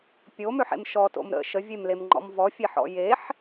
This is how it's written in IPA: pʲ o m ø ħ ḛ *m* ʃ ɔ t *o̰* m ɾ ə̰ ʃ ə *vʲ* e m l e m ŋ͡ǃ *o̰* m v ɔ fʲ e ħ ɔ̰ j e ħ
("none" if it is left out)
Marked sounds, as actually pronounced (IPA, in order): m, o̰, vʲ, ɔ̰

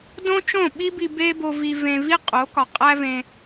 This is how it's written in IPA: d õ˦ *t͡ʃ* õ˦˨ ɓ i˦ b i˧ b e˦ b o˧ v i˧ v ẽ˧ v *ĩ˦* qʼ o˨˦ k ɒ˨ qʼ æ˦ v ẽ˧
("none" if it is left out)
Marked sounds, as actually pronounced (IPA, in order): t͡ʃ, i˦

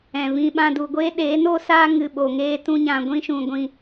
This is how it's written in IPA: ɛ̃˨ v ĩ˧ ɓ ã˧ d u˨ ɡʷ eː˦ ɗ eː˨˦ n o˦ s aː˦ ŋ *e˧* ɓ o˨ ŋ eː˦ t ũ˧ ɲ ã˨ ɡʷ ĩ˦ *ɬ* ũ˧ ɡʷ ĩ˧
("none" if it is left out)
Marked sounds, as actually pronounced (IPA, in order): ɨ˧, ʃ

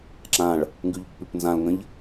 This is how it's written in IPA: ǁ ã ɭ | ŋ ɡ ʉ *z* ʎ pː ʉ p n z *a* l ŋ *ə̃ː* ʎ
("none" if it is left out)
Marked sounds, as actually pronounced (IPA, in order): none, ã, ə̃

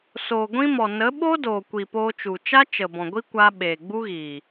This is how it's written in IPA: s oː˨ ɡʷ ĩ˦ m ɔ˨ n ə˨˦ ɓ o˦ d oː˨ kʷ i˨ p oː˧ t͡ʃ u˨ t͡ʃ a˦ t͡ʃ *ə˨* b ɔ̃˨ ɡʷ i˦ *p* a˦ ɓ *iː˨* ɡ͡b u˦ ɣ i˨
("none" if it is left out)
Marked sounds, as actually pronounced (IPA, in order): ə˨, kʷ, eː˨

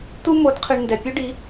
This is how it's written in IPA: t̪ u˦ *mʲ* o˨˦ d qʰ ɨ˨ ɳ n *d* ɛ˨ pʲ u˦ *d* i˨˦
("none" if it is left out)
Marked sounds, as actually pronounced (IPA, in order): m, d, ɖ

